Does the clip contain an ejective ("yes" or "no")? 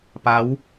no